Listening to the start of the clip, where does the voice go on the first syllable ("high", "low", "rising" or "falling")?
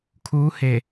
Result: rising